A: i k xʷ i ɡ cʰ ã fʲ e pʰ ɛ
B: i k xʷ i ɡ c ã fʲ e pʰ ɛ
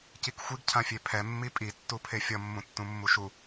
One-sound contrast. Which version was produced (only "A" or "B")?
A